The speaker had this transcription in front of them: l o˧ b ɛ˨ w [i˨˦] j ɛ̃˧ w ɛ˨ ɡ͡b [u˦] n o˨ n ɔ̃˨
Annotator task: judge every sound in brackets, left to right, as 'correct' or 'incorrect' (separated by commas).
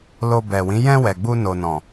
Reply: incorrect, incorrect